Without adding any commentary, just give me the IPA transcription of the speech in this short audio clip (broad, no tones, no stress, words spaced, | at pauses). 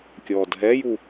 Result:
kʲɔːdɦɛju